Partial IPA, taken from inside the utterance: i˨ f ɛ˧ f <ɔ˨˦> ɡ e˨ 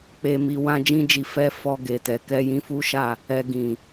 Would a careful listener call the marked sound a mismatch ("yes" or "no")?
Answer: yes